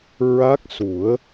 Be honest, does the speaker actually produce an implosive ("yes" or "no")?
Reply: no